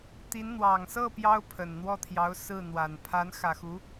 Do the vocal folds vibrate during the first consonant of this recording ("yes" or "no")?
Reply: no